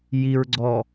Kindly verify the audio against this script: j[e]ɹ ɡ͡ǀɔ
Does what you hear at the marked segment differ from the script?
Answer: yes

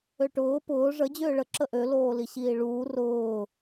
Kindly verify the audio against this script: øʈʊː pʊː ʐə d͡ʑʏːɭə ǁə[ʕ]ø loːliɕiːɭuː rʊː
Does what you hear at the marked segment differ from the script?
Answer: yes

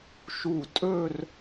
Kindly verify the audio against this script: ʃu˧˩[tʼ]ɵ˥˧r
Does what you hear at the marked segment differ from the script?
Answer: no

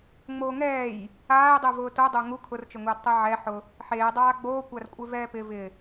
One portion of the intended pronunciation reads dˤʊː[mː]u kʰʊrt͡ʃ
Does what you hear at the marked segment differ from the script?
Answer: yes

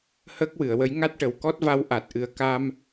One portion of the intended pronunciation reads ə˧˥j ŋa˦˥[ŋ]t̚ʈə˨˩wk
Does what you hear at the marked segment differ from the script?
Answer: yes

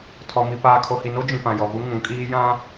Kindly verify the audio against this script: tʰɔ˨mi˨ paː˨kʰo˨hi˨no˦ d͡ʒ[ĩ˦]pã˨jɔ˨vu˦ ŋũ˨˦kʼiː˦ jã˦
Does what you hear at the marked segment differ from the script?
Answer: yes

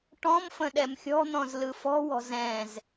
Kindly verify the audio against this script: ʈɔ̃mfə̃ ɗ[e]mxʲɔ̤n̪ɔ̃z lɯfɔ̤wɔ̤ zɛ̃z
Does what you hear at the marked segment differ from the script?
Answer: yes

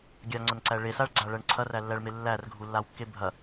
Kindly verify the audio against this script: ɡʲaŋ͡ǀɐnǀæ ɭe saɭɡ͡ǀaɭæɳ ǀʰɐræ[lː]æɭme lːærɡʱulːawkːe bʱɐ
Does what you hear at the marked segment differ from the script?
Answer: no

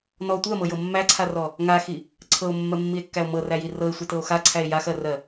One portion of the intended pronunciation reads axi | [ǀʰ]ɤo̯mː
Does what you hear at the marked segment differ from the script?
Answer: no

